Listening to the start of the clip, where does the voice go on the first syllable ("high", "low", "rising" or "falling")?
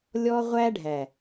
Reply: high